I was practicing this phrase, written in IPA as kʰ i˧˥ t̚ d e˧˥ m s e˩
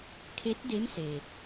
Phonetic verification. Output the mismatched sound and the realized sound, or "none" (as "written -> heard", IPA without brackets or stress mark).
i˧˥ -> e˧˥